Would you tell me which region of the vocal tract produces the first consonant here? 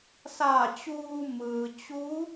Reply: tongue tip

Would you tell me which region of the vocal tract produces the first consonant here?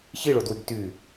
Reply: palate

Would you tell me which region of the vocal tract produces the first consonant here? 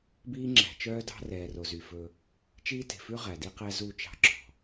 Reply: lips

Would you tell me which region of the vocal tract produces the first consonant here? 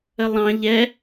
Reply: tongue tip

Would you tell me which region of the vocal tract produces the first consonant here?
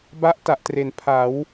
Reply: lips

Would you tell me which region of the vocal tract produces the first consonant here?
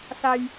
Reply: tongue tip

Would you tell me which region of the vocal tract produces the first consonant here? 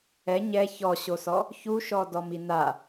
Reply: palate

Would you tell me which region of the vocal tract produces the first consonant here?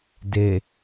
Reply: tongue tip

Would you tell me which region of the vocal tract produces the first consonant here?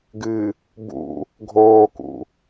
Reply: velum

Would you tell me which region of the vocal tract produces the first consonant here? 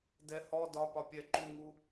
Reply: tongue tip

